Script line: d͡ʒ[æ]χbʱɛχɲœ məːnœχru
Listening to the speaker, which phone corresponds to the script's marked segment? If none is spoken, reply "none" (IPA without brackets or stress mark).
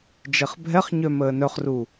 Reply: ɛ